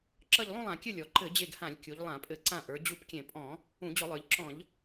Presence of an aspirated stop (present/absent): absent